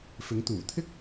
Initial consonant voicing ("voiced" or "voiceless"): voiceless